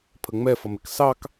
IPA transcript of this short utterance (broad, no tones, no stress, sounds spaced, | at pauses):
pʰ ə ŋ͡m ɛ f ʌ m ɪ k s ɑ k